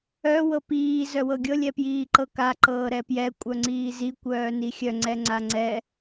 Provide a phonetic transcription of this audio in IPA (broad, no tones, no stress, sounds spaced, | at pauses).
œ w ɤ p iː z œ w ɤ ɡʲ ɤ lʲ ɛ p j iː ǃ ɤ k a ǃ ɤː ɾ ɛ p j ɛ kʷʼ œ ŋ͡ǀ iː z i kʷ œː n i xʲ œ ŋ͡ǀ ɛ ŋ͡ǀ a ŋ͡ǀ ɛ